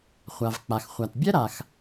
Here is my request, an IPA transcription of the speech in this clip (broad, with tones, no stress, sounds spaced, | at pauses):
χʷ a˩ v k͡p a˩ x χʷ a˩ t bʲ ɛ˥ ɾ a˩ x